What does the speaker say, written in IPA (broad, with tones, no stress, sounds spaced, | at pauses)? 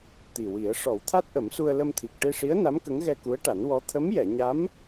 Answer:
t̪ i˨˩ w i˨˩˦ ə̯ ʂ ɔ˨˩˦ w t̪ʰ a˦˥ t̚ ʔ ə˨˩˦ m s u˧ ə̯ l ə˧ m t̪ʰ i˨˩ k̚ ʈ e˧ ʂ i˧˥ ə̯ n a˧˥ m k ə˧˥ ŋ ɣ ɛ˧ k u˧˥ ə̯ ʈ a˨˩˦ n w ɔ˧˥ t̪ʰ ə˧˥ m j ɛ˨˩˨ ɲ a˧˥ m